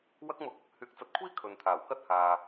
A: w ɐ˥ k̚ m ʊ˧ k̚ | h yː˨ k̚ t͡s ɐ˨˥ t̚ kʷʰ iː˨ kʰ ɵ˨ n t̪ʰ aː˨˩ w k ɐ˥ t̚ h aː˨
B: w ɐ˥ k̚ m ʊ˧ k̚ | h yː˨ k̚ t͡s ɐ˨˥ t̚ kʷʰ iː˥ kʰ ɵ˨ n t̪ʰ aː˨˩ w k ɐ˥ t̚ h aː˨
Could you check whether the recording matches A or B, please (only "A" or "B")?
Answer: B